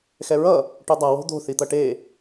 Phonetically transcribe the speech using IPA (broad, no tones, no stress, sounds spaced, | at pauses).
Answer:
x ɛ ɹ ʌ | ʈ o dˤ a w o̤ d̪ o̤ θ i t̪ ʌ ʈ e